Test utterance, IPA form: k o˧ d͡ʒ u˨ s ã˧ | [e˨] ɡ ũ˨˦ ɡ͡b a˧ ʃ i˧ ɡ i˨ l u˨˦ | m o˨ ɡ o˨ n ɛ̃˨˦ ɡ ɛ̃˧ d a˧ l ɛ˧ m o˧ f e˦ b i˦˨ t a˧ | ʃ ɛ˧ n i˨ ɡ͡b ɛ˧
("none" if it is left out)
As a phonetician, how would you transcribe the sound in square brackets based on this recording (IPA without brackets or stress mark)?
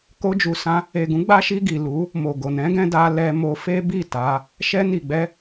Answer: e˨